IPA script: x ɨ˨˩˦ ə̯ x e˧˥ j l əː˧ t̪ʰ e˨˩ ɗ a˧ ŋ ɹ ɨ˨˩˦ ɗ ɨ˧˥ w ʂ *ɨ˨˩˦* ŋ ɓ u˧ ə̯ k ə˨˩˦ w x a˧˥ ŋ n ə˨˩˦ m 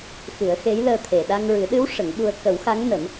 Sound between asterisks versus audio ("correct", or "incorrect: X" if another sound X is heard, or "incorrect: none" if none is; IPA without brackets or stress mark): incorrect: ə˨˩˦